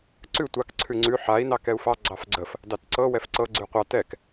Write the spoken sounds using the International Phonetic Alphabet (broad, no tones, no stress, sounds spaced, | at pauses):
ǀ ʉ tʷ a k ǀʰ ʉ ŋ͡ǀ ʉ ħ a i̯ n ɑ k ɛ u̯ f ɑ ɡ͡ǀ ɑ f ɡ͡ǀ ə f | d ɑ t ǀ ɤ w ɛ f ǀ ɤ ɡ͡ǀ ʉ qʷ ɑ t ɛ k